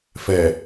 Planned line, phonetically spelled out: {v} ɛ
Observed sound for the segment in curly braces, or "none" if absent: f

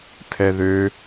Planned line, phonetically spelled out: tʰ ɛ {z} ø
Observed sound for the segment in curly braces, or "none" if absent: ð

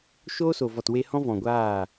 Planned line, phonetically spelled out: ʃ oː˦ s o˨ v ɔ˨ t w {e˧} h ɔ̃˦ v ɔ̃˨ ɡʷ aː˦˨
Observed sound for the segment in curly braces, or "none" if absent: e˧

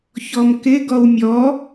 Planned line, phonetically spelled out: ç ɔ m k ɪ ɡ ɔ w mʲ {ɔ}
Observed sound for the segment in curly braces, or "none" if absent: ɔ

